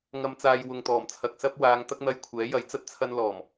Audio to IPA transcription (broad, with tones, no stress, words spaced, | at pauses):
ŋɐ˨mt͡saː˨j wʊ˨ŋt̪ɔː˨˩mt͡sʰɐ˨k̚ sɐ˥p̚ waː˨˧ŋt̪ɐ˥k̚n̪ɐ˧j kʷʰɛː˨˥jɐ˨˥j t͡sɐ˥t̚ t͡sʰɐ˧nlɔː˨˩m